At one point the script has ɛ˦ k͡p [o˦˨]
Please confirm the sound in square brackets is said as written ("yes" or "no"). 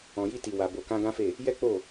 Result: yes